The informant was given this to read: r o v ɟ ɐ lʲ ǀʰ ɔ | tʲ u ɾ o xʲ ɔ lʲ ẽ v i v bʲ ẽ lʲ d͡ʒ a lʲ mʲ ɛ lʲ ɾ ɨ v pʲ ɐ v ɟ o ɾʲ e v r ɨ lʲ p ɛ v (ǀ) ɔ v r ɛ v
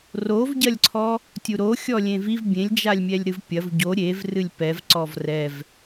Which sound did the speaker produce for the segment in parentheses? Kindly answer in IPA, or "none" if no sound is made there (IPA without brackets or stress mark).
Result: ǀ